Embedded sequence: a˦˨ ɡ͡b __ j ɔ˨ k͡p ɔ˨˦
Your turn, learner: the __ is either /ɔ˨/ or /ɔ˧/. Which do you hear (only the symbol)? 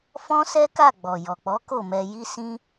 ɔ˨